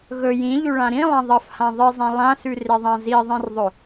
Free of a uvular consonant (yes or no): yes